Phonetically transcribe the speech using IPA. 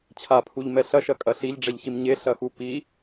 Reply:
t͡ɕʰ a pʰ u ʎ m ɛ ɬ ɐ ʃ ɐ kʼ ɐ ɬ i ʎ ɖ͡ʐ ɛ ʎ ç i m ɲ e ɬ ɐ x u p i

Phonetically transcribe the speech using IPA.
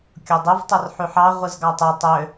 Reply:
kʲ o dˤ ɯ v tˤ ɯ r ħ y ħ ɑ ʁʷ ɯ z ɡ ɑ tˤ y tˤ ø

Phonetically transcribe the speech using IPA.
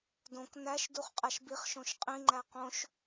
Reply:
d õ k n æ ʃ d u χ qʼ æ ʃ b i χ ʃ õ ʃ qʼ ĩ ŋ͡ǃ æ q õ ʃ

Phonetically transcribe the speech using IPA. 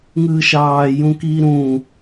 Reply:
ŋ ɯː ʃ ɑː j ũ k iː ɾ ũː

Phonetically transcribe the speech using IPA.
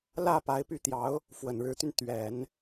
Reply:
l ä˥˩ p a˧˥ ɪ̯ p y˥˩ t̪ j ɑ˧˥ ʊ̯ | f w ə˨˩ n ɻ ɻ̩˧˥ t̪ y˧ n t̪ ɥ ɛ˨˩˦ n

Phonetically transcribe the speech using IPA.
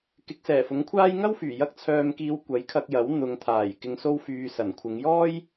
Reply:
k ɪ˨˥ k̚ s ɛː˨˩ f ʊ˨˥ ŋ kʷʰ aː˥ j ŋ ɐ˥ w f yː˨˩ j ɐ˧ k̚ t͡sʰ œː˨ m k iː˨˧ w kʷ ɐ˨˥ j kʰ ɐ˧ k̚ j ɐ˨˥ w n̪ ʊ˨˧ ŋ t̪ʰ aː˨˩ j k ɪ˨ ŋ s o˧ w f yː˨ s ɐ˨˩ n kʷʰ ɪ˨˧ ŋ j ɔː˥ j

